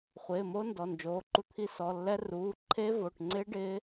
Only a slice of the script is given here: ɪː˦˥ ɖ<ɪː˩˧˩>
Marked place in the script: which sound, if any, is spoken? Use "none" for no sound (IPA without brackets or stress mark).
ɪː˦˥